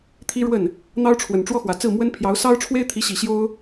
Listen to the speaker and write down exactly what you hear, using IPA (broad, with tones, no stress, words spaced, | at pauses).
t̪ʰi˥ɻwə˥˩n | n̪ɑ˥ʊ̯ʈ͡ʂʰwə˨˩n ʈ͡ʂwɔ˥xwä˨˩t͡sɹ̩˥˩ mwə˥npʰjɑ˧˥ʊ̯ sɑ˥ʊ̯ʈ͡ʂʰwe˥ɪ̯t̪ʰi˧˥ɕi˨˩ ɕjo˥ʊ̯